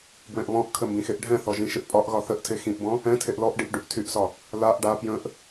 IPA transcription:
b w ɛ̃ ʔ β ɔ̃ ʔ kʰ ə m b ĩ x e ʔ ɖʱ ɛ̃ θ ɔ ʒ ĩ ʃ ɪ ʔ pʼ ɒ ʔ ɣ ɒ θ ə ʔ tʰ e x ĩ ʔ b ɔ̃ | ɛ̃ tʰ e ʔ l ɔ ʔ ɖ i ʔ ɖ y ʔ tʰ y ʔ s ɒ | l a ʔ ɖ a p j ə̃ ʔ

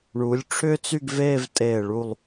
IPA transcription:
ɳ u˩˧ lʲ ʈ͡ʂʰ ʏː˥ t͡s y˥˧ ɡ v eː˥˧ v tʼ eː˧˩ ɭ u˧˩ lˠ

